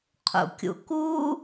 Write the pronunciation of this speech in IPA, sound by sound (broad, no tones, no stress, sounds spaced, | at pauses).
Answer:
qʰ ṵ kʲ ṵ k u